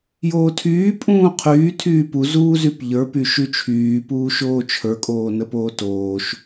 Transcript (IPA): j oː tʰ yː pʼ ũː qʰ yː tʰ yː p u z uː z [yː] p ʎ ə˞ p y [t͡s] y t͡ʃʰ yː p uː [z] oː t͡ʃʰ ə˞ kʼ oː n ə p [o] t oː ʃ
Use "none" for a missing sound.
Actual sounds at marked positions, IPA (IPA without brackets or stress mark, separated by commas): y, ʃ, ʃ, oː